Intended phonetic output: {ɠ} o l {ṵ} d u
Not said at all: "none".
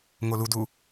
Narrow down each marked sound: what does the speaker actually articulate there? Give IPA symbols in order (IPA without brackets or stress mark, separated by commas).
ŋ, u